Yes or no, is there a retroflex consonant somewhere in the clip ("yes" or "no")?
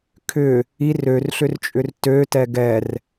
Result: no